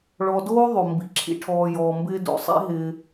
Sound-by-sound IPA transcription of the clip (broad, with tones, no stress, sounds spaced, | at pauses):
ɭ ɔ˨ d oː˦ ðˤ o˩ m b i˩ ǁʰ ḭ˨ ʈʰ ɔː˨ j ɔː˩ m b ɪː˦ d o̰˨ sˤ ḭ˥ ɦ ɪː˩